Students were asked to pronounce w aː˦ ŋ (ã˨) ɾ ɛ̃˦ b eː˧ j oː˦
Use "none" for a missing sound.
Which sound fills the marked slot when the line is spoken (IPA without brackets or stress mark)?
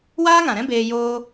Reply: ã˨